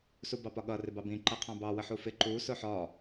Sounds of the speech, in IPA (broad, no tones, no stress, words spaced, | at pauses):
subɑpɒɠʌ rɪbɑbĩ ǃʌqʰɑ̃bɑ wəħufɪ ǃu sʊħɒ